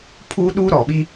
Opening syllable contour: high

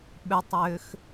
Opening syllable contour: low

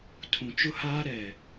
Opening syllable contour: low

